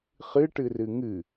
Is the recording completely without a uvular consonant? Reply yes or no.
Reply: no